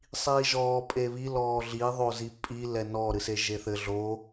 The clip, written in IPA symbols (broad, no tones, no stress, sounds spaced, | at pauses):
sˤ iː ʒ ɔː pʼ e β i l ɔː ɮ i ðˤ o z i pʼ i l ɛ n ɔ ɾ ɨ s e ʒ e θ ɘ ɮ o